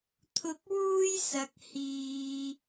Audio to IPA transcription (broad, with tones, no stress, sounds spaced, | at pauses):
t̪ʰ ʊ˧ k̚ w uː˥ j s ɐ˨ k̚ h iː˧